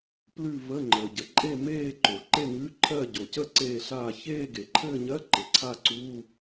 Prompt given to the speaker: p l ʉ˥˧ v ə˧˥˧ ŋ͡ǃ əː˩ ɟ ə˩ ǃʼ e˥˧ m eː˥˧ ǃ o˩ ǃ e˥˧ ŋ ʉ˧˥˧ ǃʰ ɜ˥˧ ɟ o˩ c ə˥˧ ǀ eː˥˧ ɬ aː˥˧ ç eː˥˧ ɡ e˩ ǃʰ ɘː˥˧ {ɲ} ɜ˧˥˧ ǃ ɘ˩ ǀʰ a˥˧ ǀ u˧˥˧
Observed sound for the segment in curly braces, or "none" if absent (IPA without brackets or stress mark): ɲ